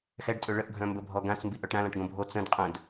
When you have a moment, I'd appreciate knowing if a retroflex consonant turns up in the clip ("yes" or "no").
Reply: yes